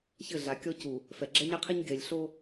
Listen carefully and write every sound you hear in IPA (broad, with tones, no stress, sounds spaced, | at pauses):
ç ɘ˦˨ ɮ a˨ kʲ ɔ˦ c u˨ | f ɛ˨ ɡ͡ǁ ɛ˦ ɲ ɛ˦ qʰ i˦ ɲ ɡ e˨ lʲ ɬ o˦